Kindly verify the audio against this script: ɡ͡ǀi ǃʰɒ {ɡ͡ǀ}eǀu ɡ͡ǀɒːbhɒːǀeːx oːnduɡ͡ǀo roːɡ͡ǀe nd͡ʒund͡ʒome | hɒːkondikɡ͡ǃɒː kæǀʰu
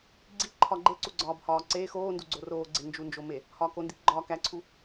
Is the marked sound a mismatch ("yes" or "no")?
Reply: yes